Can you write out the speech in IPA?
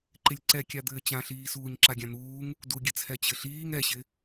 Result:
ǃ ɪ lʲ ǀ ɛ kʲ a d̪ ɘː t͡ɕ ã ɬ iː s uː ɲ ǁ a ɡʲ ã n̪ uː ŋ | d u ɡʲ ɘ t͡sʰ ɛ t͡ɕ ɘ ɬ iː ŋ ɛ ɕ ɪ

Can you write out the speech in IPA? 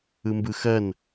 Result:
ɯ m b ɯ x ɜ n

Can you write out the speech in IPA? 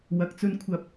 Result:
w ɐ˧ k̚ t͡s ɵ˥ n kʷʰ ɐ˥ p̚

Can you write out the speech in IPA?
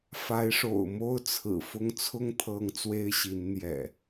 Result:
f a˨˦ ɪ̯ ʂ o̰˨˩ ʊ̯ m o˦ ʊ̯ t͡sʰ ɹ̩˨˩ f ʊ˦ ŋ t͡sʰ ʊ˦ ŋ t̪ʰ ɤ˨˦ ŋ t͡s w e˦ ɪ̯ ɕ i˨˦ n n̪ j ɛ̰˨˩

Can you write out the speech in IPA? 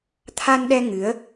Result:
t̪ʰ a˧ n ɗ ɛ˧ ŋ ɨ˨˦ ə̯

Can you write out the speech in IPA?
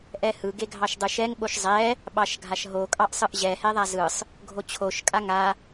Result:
ʔ ɛ h ɯ ɡ e ɡʱ ɑ ʃ dˤ ɯ ʃ ɛ ŋ ɓ o ʃ zˤ ɛ | ɓ ɑ ʃ ɡʱ a ʃ ɦ o kʼ ɑ ʔ sˤ ɯ ʔ ʑ ɛ h ɛ ðˤ a z ɯ sˤ | ɡʱ o t͡ɕʰ o ʃ kʼ a ŋ a

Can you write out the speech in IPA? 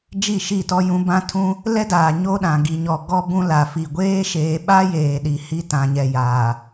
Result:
d͡ʒ i˦˨ ʃ i˦˨ t ɔ˦ j ũ˦ b ã˦ tʰ ũ˦ | l ɛ˦ d aː˨ ɲ o˦ ɗ ã˨ ɡ i˨ ɲ ɔ˨ ɡ ɔ˦ b ũ˦ l a˨ f i˨ ɡʷ eː˦ ʃ eː˨ ɓ a˦ j eː˨ ɗ i˨ h i˦ t ã˨ ɲ ɛ˨ j aː˨

